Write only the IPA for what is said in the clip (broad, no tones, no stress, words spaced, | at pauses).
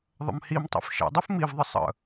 ðˤə̰mhimtˤḭf ʃḛdˤif mivðˤə sˤə̰